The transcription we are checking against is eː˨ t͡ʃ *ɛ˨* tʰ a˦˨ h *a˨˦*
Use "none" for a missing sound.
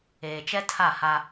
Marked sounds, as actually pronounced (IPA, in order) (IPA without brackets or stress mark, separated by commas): ɛ˦, a˦